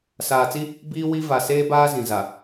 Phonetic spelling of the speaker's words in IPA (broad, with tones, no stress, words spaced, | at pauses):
saː˨t͡si˦ | biː˦ wi˦ va˨ seː˦baː˦ zĩ˨ za˨